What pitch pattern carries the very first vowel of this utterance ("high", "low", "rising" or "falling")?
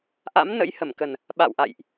rising